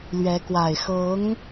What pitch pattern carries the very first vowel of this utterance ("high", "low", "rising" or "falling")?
rising